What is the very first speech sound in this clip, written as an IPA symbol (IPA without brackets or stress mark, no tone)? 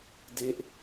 d